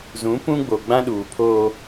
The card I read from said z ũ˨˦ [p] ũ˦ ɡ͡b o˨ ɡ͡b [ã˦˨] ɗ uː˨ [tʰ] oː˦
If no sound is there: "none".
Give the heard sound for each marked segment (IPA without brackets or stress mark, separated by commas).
p, ã˦, pʰ